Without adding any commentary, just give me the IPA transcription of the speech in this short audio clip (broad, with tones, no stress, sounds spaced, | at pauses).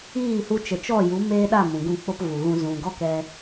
iː˦˨ h u˧ t͡ʃ ə˨ t͡ʃ ɔ˦˨ j u˨˦ m eː˦ ɗ a˦˨ m ũ˨ ɡ ũ˦˨ k͡p o˦ p v u˨ ɣ ũ˧ z ũ˨ ɡ ɔ˦˨ k ɛ˧